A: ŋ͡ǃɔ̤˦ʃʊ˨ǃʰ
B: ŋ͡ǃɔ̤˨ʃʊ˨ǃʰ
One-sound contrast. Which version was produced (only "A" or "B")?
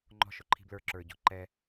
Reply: A